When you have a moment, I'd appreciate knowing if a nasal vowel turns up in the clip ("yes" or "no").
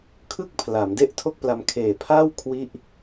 no